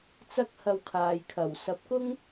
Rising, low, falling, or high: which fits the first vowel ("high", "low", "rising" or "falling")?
high